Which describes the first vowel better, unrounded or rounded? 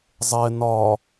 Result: unrounded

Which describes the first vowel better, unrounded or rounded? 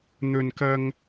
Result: rounded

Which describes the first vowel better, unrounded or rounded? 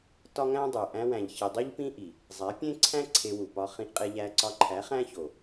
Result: rounded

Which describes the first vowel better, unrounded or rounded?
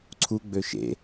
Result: rounded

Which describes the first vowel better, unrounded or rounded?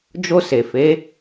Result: rounded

